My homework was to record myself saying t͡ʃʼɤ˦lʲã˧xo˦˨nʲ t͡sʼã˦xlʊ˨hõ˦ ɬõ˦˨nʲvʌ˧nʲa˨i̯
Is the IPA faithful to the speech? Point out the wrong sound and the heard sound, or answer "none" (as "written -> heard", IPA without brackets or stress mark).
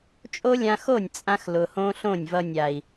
ɤ˦ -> o˦